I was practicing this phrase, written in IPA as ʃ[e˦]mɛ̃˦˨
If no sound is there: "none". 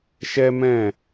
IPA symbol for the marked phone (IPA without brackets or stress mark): ɛ˦